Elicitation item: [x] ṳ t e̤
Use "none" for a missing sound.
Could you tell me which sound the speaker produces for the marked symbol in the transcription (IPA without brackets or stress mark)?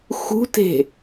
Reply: x